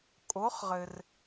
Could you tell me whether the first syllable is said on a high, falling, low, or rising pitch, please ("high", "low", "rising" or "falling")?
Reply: rising